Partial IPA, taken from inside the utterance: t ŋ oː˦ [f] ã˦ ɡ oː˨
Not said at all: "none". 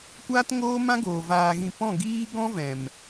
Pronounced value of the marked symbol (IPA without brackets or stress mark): m